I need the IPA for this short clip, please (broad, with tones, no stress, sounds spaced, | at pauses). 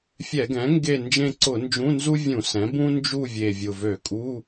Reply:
fʲ ɛ˧˩˧ ɡ ɛ̃˩˥ ŋ ɡ e˦˨ n d͡ʒ ẽ˦˨ ǀ ʊ˧˩˧ n d͡ʒ ũ˧˥˧ n z u˥ vʲ ũ˧˩˧ s ɛ̃˩˥ b ũ˥ n d͡ʒ u˦˨ vʲ e˨˩ vʲ ʊ˨˩ v ø˧˩˧ kʼ u˧˥˧